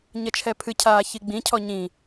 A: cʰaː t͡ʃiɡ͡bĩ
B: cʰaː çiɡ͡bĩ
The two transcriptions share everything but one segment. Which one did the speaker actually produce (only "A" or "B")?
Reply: B